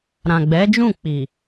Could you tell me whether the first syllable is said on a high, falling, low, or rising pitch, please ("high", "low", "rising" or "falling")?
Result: low